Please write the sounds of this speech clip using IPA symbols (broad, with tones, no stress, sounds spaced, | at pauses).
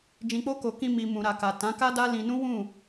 d͡ʒ ĩ˨ k͡p o˧ k o˨ k ĩ˧ m i˧ m ũ˨ ɾ a˨ k a˨ t ã˨˦ k a˦ d a˦ l ĩ˧ n ũ˦ w ũ˦˨